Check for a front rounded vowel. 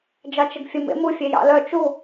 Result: present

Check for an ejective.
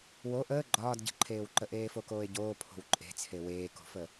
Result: present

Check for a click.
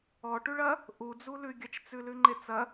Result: present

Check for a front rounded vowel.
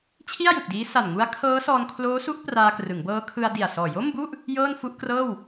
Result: absent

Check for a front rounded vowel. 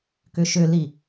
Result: present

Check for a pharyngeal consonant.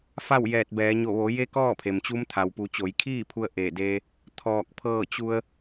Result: absent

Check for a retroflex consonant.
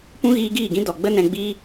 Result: absent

